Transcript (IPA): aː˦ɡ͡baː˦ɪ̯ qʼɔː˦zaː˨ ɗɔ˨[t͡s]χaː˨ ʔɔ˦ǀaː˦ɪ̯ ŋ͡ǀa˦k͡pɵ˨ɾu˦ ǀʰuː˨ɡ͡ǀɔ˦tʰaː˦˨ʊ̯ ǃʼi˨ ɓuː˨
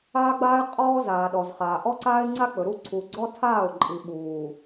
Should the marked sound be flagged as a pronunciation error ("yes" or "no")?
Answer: yes